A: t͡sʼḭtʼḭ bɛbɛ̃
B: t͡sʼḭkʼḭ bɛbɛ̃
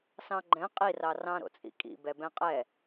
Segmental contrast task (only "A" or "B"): B